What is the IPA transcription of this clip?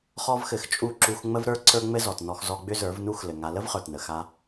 χ ɔ˦ v x ɘ˧ x t͡ʃʼ u˦˨ ǁ u˧ x ŋ͡m ə˦ v ɾ ə˞˦ ǀ ə˞˦ ŋ͡m ɘ˦ z ɔ˨ t n ɔ˧ x z ɔ˧ ɡ͡b ʏ˦ z ə˞˨˦ v n u˦ x l ɘ˨ ŋ a˧ l ə˦ v χ ə˞˨ t n ə˨ x a˦

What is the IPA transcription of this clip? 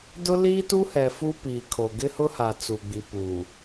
d ʊ˦ l iː˦ t u˦ h ɛ˨ f u˦ p iː˨ kʰ o˨ ɡ ɪ˦ h ʊ˦ h a˨ t͡s u˨ ɡ͡b i˨ p uː˨

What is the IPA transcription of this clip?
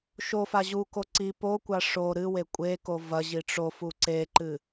ʃ o f a ʑ u k o ǀ i p o kʷ a ʂ o ɾ ɨ w e kʷʼ e k o v ɐ ʑ i ʈ͡ʂ o f u ǀ e ǃ ɨ

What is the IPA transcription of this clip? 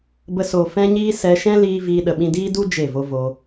b ə˧ s o˨ f ɛ̃˦ ɲ iː˦ s ɛ˧ ʃ ɛ̃˦ l iː˦ v iː˦ ɗ ə˧ ɓ ĩ˦ d iː˦ d u˦ d͡ʒ e˦˨ v o˦ v o˧

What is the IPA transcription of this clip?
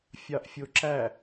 fʲ ɑ ʔ fʲ o ǁ æ

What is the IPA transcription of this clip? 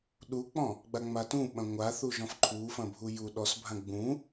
ɗ u k͡p ɔ̃ | ɡ͡b a ŋ͡m a t ũ ɓ ɐ̃ ŋʷ a θ u ʒ ɔ̃ f ǃʰ u f ɐ̃ bʱ u j u ɗ ɔ s bʱ ã ɡ͡b ũ

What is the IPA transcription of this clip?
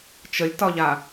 t͡ʃ ə lʲ t ɒ ʎ a

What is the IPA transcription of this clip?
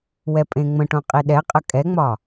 w ɛ pʼ ẽ ŋ͡m ə̃ ʈ õ qʼ i ɗ ɛ qʼ ə kʼ ɛ ŋ͡m ɒ

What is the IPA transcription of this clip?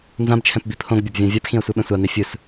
n z ã b t͡ʃʰ ɛ̃ p b i pʰ õ ɡ bʲ ʌ b vʲ ã vʲ a p x ĩ ɐ̯ sʷ ɛ ɓ ɛ̃ sʷ a n̪ e fʲ ɯ s

